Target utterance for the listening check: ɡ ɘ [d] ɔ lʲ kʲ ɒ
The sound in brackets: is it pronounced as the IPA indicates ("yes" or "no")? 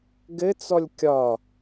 no